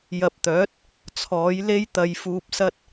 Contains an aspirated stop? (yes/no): yes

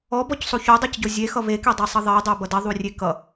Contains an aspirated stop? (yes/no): no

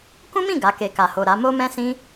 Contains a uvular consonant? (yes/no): no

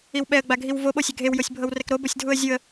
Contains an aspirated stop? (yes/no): no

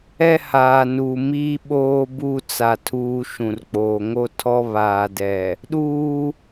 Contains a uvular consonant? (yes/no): no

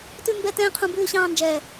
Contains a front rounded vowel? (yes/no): no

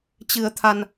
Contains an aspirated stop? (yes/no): yes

